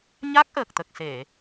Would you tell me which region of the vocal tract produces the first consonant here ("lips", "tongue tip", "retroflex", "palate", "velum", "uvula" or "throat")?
palate